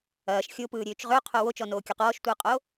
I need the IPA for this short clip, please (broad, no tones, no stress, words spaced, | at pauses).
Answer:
ɐːʃ xʲopɯːɾʲøːt͡ʃ ʁøqʰo wot͡ʃɔnoːkʲɔq ɔːʃtʷɯːqʼo